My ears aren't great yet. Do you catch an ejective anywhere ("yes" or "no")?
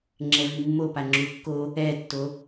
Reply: no